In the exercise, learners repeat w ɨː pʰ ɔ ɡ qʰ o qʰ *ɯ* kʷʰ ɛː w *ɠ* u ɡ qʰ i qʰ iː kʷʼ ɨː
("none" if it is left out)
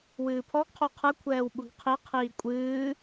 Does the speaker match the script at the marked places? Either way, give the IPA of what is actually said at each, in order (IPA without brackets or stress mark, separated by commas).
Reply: ɯ, ɓ